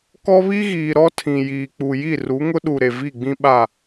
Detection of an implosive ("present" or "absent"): present